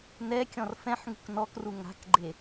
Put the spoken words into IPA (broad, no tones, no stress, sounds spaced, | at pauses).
n ɛ kʲ ɔ̃ r f ɛ̃ ħ ŋ ṳ k n ɔ k r u ŋ a̤ k ɡ͡ǃ e